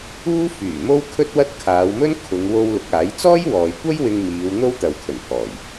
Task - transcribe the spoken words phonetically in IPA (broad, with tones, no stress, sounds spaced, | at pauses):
uː˥ f yː˨˩ m o˥ w kʰ ɵ˥ t̚ w ɐ˥ t̚ kʰ aː˨˧ w m ɵ˥ n kʰ ʊ˨˧ ŋ w o˧ w l ʊ˨˥ k̚ aː˨˥ j t͡s ɔː˥ j w ɔː˨ j kʷ ɐ˥ j w ɪ˧ ŋ m iː˨˧ w n̪ o˥ w t̪ ɐ˨ w kʰ ɵ˨˩ n pʰ ɔː˨˩ j